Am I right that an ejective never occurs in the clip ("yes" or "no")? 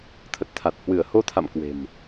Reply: yes